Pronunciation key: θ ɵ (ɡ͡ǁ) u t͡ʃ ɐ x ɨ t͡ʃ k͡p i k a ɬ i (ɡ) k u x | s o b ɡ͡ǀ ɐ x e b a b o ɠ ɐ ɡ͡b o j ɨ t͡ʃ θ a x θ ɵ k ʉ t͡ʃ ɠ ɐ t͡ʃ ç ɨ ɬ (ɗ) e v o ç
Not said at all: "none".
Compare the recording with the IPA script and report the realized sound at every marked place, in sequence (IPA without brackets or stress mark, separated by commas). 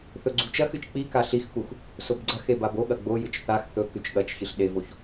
ɡ͡ǀ, x, ɗ